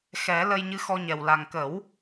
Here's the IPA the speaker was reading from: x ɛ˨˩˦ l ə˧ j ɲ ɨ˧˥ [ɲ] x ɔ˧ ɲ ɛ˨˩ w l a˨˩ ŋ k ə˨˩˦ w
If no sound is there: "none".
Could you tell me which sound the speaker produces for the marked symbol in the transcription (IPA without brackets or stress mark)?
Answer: none